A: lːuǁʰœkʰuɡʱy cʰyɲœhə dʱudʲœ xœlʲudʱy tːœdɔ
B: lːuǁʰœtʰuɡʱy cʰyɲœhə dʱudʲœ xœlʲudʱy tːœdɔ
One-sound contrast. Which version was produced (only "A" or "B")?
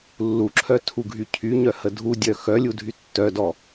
B